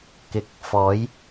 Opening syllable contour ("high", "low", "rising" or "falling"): low